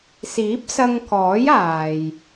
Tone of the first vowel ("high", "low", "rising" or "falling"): rising